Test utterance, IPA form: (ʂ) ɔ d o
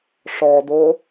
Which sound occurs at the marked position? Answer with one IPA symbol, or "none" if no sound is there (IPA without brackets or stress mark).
ʂ